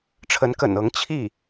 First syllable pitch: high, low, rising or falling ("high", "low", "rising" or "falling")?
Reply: rising